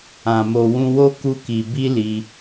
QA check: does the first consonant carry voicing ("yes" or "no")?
yes